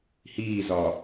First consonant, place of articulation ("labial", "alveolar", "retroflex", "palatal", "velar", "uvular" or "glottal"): glottal